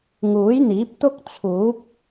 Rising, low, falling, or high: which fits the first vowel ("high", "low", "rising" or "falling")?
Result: rising